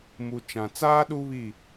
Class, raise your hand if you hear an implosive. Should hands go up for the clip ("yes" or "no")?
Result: yes